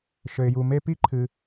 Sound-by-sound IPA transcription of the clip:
ʃ ɘ˩ ɪ̯ j u˩ m e˥ p i˥ ǃʰ ɨ˩

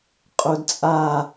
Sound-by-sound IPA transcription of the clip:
qʼ o d t͡sʼ a

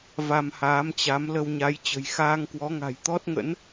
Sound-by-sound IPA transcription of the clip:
v a˧ m h aː˨˦ m t͡ɕ a˨˦ m l ə˧ w ɲ a˨˦ j t͡ɕ ə̤˨˩ j x aː˧ ŋ k w ɔ˨˦ ŋ a̤˨˩ j t̪ ɔ˦˥ t̚ ŋ ə̰˧˥ n

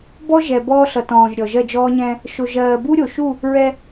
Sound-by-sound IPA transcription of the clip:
b ɔ˦ ʒ ɛ˨ b ɔː˦ ɬ ʌ˨ t ɔ̃ː˨ ʒ ɾʲ ɔ˨ ʒ ɜ˦˨ d͡ʒ ɔː˦ ɲ ɛ̃˦ | ʃ o˨ ʒ ɜː˨ b u˦ ɾʲ o˨ ʃ u˦˨ | ɹ ɛ˦

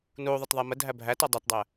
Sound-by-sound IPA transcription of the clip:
n u ðˤ ə t ðˤ ɛ m ə dʱ æ bʱ æ t ɒ dˤ ɛ t dˤ æ

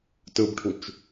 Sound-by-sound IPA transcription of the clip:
t ɯ b ʈʰ u t͡ʃ

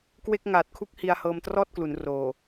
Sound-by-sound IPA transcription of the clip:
k w e˥˩ k̚ ŋ aː˨˩ t̚ kʰ u˦˥ k̚ h i˧ a̯ h ɤː˧ m t r ɔː˥˩ t̚ k l u˩˦ n r oː˨˩

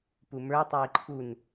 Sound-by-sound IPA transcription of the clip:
p u m ə˞ tˤ ɜ i̯ ǃʰ u n

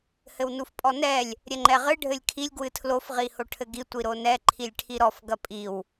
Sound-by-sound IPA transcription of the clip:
h ɘ w n u f pʼ ɔ n ɛ lʲ | ɾʲ ɛ ŋ͡ǃ ɛ ʁ ɨ ɖʱ ɘ lʲ kʰ i lʲ ɡ w ɨ tʰ l o f ʁ i h o ʈʰ ɘ ɡ i tʷ i ɾ o n ɛ ǃʰ i lʲ ʈʰ i ɾ ɔ f ɡ ɐ pʼ i w

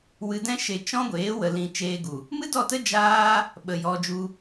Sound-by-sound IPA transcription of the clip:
w ɨ˧ d ɛ̃˦ ʃ e˧ t͡ʃ ɔ̃˦ ɡʷ eː˨˦ w ə˨ l ĩ˨ t͡ʃ eː˧ ɡ u˨ | m ɨ˦ d ɔ˦˨ t ə˦ d͡ʒ aː˦ | ɓ ə˨ j ɔ˧ d͡ʒ u˧

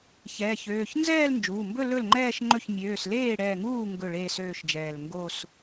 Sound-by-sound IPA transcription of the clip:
ç ɛː˩˧˩ ç øː˩˧˩ ç n z ɛː˥˧ l n d͡ʒ uː˩˧˩ m b ɵ˥˧ l ɵ˥˩ l ŋ͡ǃ ɛː˥˧ ʃ ŋ͡ǃ ɵ˥˩ ç mʲ øː˩˧˩ s l eː˥˩ ɽ ɛː˧˩ ŋ uː˥˩ ŋ ɡ ɵ˥˩ ɭ eː˥˧ s øː˥˧ ʃ d͡ʒ ɛː˧˩ l ŋ ɡ o˥˧ s

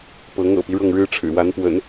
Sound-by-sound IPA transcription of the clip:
p ɤ˧˥ ŋ ɤ̰˨˩ p i˦ ɻ ɤ˥˩ ŋ ɻ ɻ̩˥ ʈ͡ʂʰ ɻ̩˨˩ w a˧˥ n p w ə̰˨˩˦ n

